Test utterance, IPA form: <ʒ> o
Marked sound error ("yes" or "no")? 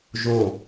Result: no